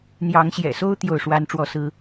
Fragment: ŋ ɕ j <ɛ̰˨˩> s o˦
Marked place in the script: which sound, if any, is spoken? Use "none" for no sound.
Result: ɛ̰˨˩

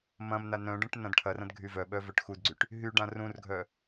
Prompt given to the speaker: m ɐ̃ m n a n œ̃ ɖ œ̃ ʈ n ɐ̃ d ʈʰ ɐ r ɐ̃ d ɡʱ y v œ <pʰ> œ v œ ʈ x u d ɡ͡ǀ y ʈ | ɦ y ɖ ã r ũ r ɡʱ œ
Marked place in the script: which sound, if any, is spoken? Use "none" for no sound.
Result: ɓ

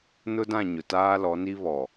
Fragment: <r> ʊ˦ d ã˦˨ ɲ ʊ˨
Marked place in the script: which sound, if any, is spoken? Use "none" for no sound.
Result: n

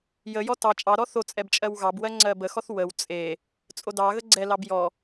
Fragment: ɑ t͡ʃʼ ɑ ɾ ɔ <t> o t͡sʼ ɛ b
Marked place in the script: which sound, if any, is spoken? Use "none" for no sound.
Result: θ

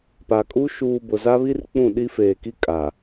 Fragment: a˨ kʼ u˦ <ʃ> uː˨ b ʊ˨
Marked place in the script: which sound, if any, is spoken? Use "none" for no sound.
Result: ʃ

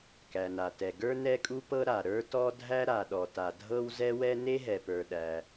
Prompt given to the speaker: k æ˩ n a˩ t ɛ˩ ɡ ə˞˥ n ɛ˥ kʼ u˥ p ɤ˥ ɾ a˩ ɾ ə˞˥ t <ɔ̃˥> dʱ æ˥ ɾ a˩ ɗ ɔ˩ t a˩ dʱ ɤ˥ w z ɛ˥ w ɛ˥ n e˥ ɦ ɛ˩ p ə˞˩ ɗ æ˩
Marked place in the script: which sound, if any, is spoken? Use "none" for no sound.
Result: ɔ˥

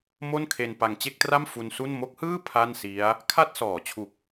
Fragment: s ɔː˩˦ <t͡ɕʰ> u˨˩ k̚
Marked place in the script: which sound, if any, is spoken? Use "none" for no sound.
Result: t͡ɕʰ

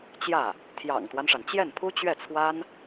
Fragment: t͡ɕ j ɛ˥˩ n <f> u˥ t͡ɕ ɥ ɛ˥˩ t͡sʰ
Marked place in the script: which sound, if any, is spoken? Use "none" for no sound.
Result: pʰ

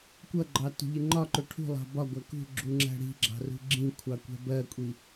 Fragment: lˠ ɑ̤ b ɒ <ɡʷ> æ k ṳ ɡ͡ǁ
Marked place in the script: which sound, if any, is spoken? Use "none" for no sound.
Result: ɡʷ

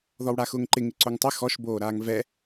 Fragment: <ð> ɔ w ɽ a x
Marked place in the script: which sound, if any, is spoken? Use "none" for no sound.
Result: ð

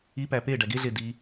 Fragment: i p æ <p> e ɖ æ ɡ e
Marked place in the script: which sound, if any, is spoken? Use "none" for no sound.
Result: p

